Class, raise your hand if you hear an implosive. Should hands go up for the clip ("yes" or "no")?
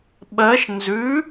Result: yes